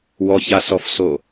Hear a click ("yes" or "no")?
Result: no